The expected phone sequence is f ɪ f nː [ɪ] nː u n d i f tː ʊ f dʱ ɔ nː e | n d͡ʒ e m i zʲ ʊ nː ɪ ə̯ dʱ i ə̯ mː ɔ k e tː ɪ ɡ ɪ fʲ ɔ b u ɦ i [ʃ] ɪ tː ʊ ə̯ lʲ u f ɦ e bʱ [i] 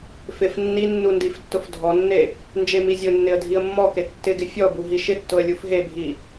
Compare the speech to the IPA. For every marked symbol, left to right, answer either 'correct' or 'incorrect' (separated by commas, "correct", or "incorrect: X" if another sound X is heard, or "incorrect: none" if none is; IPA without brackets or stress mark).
incorrect: i, correct, correct